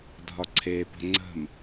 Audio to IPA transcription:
dʱɒǀʰepə̤ ŋ͡ǀə̤m

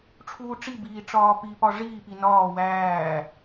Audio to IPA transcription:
ʈ͡ʂʰuːʈ͡ʂibiː ʈ͡ʂɒːpipɒ ʐiːpi nɒː wæː

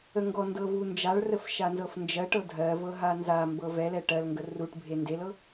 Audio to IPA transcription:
əŋɡɔndɤ vund͡ʒaɭrəf ʃanzɤfnd͡ʒɜʈɤ dʱɜvɤ ɦanzambɤ vɛlɛ ʈɜlŋɡə ruʈbʱe ndelɤ

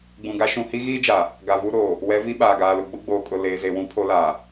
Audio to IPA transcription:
ɡ͡bũ˨ɡa˦ ʃũ˨hi˦ɣiː˦d͡ʒa˨ | ɡa˨vu˦ɾoː˨ | wɛ˨˦vi˦ ɓaː˨ɡaː˨lʊ˨ ɡ͡bʊ˦ɡ͡boː˨kʼʊ˨ leː˨ze˨wũ˦pʰo˦ laː˨

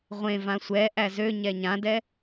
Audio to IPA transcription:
ʁʷẽ vãsʷɛ ʔæzø ɲɛɲãdɛ

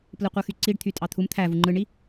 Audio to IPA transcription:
plɯqʷɯxyǀiɖ t̪ʰytʼɑt̪ʰum t̪ʰæ vuŋ͡ǃɯɳi

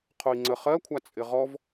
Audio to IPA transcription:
qʰoi̯ŋ͡ǀə χɜkʷʰa t͡sʼɪʁɔv

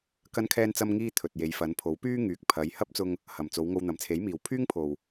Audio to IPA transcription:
kɐ˥nkʰɛː˥nt͡sɐ˥mŋiː˥ t̪ʰɵ˨t̚je˨˧j fɐ˨˧npʰo˨˥wpyː˥ŋyː˨k̚ pʰɐ˨˧j hɐ˥p̚t͡sʊ˧ŋ | hɐ˨mt͡so˨˧wŋo˧w n̪ɐ˨mt͡sʰe˨˥jmiː˨w pʰyː˥ŋpʰo˨w

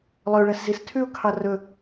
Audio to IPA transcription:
lˠøʊ̯ɭæszistʰʉʊ̯ kʰɑrɵ

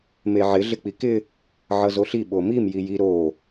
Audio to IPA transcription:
meʕɪ ɮɪk͡pikɪ | ʕʌzoɬi ɓomim jiji ɾo

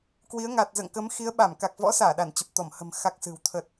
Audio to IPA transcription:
kwi˨˦ə̯ ŋa˨˩t̚zə̰ː˧˨ŋkəː˨˦m xi˨˦ə̯ɓa˧˩m ka˨˩k̚vɔ̰˧˥saː˧˩ ɗa˧˩nt͡ɕə˨˩p̚t̪ɔ˧˩mhə̤˨˩m xa˦˥k̚sɨ̤˨˩w t̪ʰə˨˩t̚

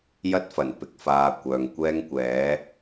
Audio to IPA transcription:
jɐ˥t̚fɐ˨˩npɪ˧k̚ faː˧kʷœː˨ŋ kʷɛː˥ŋkʷɛː˨˥

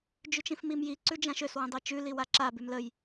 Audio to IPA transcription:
d͡ʒʉt͡ʃĩfmimji ǀʉd͡ʒãʃøs wĩdˤit͡ʃʉ liwaǁa bʉmləj

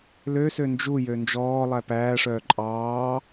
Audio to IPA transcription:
løsø nd͡ʒujø nd͡ʒɔː lˠæpæːʂœː ǃʼɑː

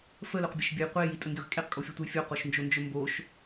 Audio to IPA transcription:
fəlɵqbʲəʃbʲɵj qʷe jitʼəŋɡeʁ kʼeqkʼofʲotʷəj fʲoqoʃnd͡ʒond͡ʒɵ mboʃ

